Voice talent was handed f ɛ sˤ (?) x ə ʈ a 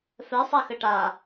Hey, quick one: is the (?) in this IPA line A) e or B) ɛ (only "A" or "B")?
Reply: B